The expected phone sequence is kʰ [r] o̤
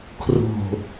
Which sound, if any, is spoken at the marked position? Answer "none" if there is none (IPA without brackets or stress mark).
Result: r